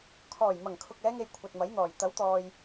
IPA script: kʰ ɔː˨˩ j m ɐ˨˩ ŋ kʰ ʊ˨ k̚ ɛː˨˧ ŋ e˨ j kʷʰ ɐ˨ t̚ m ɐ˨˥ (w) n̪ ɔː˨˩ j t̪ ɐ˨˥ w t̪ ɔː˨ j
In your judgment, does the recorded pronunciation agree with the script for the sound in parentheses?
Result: no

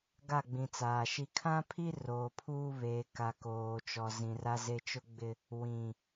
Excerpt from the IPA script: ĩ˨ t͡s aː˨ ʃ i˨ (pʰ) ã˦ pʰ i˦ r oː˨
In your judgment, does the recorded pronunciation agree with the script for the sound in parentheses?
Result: no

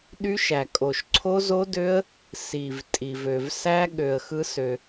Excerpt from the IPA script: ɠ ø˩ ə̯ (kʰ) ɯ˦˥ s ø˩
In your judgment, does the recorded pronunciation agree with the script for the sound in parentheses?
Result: no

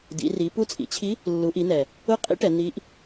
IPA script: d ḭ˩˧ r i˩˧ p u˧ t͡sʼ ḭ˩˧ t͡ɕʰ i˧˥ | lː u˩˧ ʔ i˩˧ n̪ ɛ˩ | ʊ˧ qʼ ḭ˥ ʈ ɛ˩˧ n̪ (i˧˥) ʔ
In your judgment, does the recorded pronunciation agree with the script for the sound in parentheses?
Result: yes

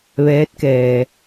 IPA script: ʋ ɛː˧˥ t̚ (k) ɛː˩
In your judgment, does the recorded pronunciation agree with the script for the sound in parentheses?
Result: yes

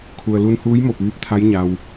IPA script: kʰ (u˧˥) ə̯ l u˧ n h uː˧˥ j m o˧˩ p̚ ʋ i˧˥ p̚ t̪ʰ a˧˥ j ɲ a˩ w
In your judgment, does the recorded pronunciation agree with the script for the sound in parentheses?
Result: no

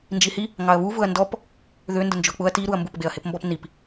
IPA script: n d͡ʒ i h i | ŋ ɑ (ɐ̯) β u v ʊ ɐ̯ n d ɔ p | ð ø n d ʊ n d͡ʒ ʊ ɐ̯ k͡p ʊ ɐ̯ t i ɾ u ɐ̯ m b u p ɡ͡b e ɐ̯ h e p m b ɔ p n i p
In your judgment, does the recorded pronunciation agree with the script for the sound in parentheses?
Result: yes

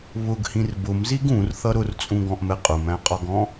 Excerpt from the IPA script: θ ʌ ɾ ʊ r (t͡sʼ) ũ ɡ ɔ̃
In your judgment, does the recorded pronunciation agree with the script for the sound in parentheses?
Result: yes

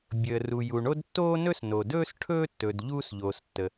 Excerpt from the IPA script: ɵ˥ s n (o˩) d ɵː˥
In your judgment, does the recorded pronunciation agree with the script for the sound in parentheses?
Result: yes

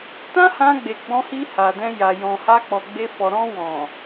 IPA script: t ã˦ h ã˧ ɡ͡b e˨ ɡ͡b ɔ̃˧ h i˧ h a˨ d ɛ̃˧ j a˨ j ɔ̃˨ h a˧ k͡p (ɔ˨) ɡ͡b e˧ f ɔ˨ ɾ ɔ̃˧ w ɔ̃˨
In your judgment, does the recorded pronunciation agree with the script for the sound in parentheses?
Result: yes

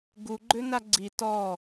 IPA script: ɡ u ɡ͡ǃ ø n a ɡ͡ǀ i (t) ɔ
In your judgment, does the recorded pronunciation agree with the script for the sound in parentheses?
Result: yes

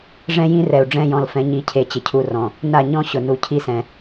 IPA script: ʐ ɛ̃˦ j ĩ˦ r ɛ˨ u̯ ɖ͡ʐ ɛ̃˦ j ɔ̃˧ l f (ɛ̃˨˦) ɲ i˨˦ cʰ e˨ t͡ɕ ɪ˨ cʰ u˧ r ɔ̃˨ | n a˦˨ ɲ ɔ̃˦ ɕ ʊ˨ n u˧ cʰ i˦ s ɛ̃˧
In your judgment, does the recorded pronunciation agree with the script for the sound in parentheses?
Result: yes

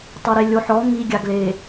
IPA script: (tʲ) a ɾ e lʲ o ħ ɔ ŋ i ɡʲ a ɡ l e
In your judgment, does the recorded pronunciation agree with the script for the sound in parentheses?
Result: no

